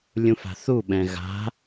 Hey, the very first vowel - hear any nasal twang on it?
yes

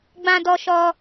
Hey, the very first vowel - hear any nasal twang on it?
yes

